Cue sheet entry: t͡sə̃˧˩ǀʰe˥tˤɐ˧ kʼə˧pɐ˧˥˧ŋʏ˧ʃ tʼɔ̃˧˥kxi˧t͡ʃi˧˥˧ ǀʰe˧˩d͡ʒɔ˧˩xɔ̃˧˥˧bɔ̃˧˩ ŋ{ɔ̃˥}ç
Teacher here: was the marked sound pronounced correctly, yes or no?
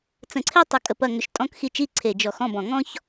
yes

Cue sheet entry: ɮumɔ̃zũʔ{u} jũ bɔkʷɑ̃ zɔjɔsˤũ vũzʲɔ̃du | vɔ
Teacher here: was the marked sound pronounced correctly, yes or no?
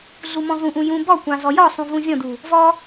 no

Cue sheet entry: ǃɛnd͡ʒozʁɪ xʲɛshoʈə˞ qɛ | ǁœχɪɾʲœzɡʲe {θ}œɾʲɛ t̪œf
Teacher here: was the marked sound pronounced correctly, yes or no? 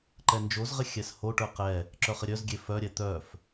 no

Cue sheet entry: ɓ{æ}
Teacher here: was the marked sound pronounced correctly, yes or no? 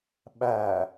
yes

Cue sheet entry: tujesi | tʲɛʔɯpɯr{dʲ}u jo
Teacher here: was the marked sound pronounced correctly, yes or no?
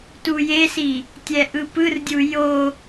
yes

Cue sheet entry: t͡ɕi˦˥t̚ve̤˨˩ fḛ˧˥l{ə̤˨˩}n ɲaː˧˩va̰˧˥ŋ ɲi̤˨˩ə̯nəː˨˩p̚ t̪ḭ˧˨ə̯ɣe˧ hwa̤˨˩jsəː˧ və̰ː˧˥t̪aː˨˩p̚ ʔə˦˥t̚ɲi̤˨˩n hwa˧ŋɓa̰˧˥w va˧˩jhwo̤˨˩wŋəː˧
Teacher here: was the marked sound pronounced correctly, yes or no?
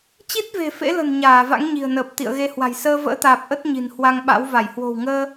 yes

